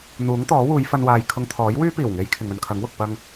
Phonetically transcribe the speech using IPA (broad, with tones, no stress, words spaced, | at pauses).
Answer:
n̪uː˨˥ŋt̪ɔː˨˥ wuː˨˧jfɐ˧nwaː˨j kʰʊ˧ŋt̪ʰɔː˨˥jwyː˥ piː˨˩wŋe˨˧j kʰɪ˨ŋɵ˧nkʰɐ˨˥ŋwʊ˨k̚ pɐ˧ŋ